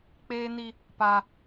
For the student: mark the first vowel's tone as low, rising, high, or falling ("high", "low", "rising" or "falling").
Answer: high